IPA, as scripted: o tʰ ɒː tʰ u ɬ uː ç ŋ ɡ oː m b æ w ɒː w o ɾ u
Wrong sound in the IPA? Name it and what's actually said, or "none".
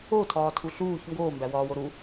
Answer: none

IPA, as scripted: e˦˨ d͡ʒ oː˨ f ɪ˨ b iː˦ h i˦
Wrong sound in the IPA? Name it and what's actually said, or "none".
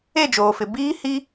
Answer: none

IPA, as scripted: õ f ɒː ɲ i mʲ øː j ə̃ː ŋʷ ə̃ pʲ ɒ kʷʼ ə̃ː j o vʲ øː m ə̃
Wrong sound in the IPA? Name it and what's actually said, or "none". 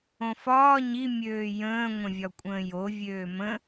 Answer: pʲ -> vʲ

